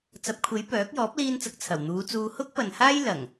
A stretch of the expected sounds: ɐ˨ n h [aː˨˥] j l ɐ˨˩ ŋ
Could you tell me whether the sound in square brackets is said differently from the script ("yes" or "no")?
yes